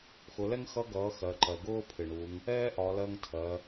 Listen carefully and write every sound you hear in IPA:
xʊ˩˧lɛ˥ŋxʌ˧˥ ɡʌː˩˧ xɜ˩˧ǃɜ˩ ɡʊː˥pʰɪ˩ ɳu˩˧ŋ | ɛː˥ʔɒ˩˧lɜ˧ŋtʰɜ˩˧

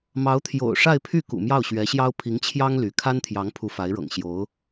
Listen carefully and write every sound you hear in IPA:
mɑ˧˥ʊ̯ t̪ʰjo̰˨˩ʊ̯ʂa˥˧ɪ̯pʰy˥˩ kṵ˨˩mjɑ˥˩ʊ̯ɕɥɛ˧˥ɕjɑ˥ʊ̯ pʰi˧˥ŋt͡ɕʰjɑ˥ŋ ly˧˥ kʰa˥nt̪ʰjɑ˧˥ŋ pʰu˧˥fa˧˥ɪ̯ɻɤ̰˨˩ŋ ɕjo˧˥ʊ̯

